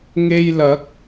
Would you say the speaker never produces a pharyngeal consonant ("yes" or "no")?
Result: yes